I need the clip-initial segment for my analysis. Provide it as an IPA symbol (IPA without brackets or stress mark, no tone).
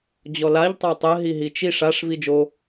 d͡ʑ